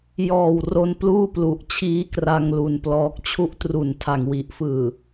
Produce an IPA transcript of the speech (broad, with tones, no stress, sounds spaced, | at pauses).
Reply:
j ɔː˨˩ w r o˧ n p l uː˥˩ p l u˨˩ ʔ t͡ɕʰ iː˦˥ k r a˧ ŋ l u˧ n p l ɔː˦˥ k̚ t͡ɕʰ u˥˩ ʔ t r u˨˩ n tʰ a˨˩ ŋ w i˨˩ ʔ f ɯː˨˩